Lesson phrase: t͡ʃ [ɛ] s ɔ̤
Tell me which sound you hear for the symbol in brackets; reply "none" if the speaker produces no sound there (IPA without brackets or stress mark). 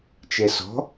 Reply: ɛ